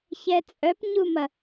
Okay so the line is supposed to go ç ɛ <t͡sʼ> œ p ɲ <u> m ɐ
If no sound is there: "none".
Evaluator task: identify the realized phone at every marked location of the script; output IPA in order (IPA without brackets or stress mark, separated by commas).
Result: t͡sʼ, u